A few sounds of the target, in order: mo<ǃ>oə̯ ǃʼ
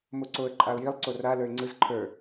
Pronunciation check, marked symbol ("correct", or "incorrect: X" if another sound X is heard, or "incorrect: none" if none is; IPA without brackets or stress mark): incorrect: ǀ